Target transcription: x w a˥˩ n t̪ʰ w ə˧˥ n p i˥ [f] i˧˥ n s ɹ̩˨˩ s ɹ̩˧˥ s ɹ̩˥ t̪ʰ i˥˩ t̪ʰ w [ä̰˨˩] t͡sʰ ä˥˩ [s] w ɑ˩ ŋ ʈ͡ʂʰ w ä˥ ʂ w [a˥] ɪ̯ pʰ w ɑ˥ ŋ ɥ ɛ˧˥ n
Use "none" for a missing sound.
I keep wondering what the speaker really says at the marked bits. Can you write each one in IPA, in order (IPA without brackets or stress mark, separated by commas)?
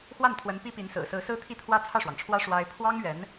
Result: p, ä˥, ʂ, a˥